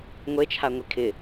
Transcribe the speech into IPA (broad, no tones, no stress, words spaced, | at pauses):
ŋʷe t͡ʃʰaŋʷikʰɪ